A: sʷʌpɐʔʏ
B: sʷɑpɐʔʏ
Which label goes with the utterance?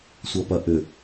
A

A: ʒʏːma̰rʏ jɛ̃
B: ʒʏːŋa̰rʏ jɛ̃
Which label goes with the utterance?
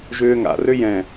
B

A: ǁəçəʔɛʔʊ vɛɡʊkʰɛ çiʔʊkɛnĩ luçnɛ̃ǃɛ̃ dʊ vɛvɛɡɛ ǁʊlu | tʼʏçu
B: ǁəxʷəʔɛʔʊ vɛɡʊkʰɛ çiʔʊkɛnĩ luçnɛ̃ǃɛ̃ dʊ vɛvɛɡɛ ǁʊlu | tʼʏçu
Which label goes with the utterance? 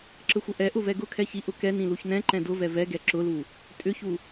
B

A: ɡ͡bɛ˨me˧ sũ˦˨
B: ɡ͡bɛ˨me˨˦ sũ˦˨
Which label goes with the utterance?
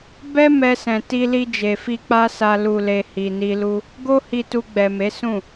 B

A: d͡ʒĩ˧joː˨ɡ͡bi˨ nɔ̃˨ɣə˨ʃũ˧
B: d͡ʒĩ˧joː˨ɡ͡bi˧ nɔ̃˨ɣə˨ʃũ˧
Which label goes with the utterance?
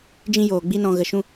B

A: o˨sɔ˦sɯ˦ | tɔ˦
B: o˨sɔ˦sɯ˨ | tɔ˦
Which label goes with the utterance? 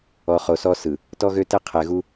B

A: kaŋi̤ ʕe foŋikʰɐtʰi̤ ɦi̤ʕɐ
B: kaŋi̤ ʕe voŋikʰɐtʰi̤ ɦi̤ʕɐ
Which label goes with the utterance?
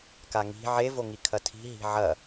B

